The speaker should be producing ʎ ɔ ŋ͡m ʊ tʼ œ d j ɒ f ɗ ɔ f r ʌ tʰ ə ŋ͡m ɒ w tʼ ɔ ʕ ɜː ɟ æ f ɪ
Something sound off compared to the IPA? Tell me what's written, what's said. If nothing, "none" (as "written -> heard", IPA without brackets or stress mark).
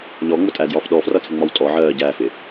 œ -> æ